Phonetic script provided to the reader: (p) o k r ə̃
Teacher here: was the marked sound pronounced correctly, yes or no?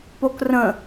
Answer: yes